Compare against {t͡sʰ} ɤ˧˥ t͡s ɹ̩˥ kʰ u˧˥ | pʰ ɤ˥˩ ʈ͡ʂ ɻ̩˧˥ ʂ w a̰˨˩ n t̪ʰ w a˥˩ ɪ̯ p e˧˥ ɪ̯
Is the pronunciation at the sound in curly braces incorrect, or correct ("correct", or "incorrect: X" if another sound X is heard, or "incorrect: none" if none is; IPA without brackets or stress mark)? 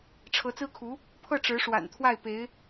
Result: incorrect: ʈ͡ʂʰ